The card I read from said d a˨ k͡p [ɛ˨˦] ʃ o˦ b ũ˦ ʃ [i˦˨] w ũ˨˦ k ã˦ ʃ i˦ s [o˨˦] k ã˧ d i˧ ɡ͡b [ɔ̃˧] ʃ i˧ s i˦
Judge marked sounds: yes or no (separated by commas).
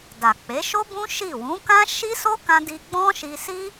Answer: no, yes, no, no